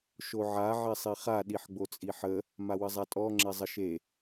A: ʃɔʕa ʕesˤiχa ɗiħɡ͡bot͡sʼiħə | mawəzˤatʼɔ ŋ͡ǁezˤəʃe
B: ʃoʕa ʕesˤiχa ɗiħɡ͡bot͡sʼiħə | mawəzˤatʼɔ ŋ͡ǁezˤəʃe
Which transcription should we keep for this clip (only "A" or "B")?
B